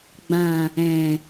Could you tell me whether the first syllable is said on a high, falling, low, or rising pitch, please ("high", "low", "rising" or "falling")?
low